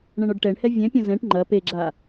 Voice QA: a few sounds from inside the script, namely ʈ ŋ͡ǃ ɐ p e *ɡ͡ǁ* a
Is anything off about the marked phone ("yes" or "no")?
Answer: no